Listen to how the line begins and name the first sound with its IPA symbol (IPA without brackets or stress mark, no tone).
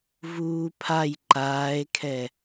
v